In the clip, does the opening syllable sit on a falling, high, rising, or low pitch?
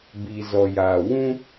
low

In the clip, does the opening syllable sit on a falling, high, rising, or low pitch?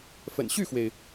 low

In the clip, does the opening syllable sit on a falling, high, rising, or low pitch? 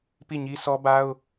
falling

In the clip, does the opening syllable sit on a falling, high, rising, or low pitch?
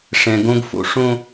low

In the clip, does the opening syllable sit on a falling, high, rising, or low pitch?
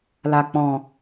low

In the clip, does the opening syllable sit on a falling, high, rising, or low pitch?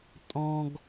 low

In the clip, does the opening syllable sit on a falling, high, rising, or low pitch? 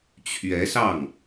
rising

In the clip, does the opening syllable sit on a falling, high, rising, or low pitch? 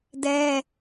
high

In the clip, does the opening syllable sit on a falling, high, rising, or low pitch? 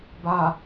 low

